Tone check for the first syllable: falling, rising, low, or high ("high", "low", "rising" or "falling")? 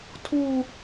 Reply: low